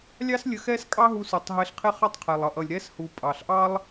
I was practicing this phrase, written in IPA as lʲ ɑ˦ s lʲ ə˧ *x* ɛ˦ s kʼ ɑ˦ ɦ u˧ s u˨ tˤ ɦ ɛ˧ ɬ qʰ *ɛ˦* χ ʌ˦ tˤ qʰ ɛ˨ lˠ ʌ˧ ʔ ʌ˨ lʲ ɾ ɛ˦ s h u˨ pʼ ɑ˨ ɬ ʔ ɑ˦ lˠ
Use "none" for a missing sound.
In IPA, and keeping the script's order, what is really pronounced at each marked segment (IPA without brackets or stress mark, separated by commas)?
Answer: x, ɛ˦